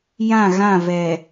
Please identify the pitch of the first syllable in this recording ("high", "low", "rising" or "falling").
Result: falling